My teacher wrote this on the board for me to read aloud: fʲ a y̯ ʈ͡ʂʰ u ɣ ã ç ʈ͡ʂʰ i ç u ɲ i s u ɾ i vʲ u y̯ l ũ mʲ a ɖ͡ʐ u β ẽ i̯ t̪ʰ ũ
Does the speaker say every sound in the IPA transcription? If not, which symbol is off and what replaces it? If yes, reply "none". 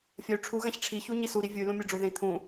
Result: β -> ð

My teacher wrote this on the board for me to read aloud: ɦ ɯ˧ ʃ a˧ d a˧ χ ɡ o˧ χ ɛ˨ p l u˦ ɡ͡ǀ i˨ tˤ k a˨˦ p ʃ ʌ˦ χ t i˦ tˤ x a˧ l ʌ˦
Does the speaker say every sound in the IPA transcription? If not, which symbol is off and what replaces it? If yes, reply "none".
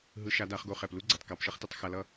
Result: none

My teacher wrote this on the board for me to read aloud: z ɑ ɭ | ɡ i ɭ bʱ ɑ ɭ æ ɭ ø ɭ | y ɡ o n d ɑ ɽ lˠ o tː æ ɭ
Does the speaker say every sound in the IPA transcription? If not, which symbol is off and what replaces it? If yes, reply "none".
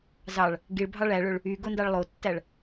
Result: ɽ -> ɭ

